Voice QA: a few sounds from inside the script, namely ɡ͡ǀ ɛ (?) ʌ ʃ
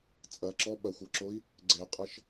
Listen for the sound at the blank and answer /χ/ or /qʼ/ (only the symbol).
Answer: qʼ